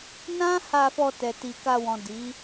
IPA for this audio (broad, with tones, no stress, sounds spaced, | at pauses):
n ã˦ h a˧ f ɔ˧ t ɛ˨ t i˨ k a˧ w ɔ̃˨ d i˨˦